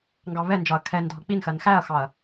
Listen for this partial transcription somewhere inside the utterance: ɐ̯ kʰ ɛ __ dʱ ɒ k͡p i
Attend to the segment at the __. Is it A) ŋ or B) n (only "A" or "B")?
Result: B